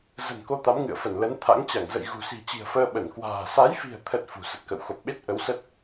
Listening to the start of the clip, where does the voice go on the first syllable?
low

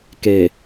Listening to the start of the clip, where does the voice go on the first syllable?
low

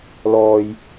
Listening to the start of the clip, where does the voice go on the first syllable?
low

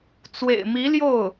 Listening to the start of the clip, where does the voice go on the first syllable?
low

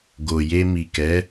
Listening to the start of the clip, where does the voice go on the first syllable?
low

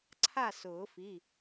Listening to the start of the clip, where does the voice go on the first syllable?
falling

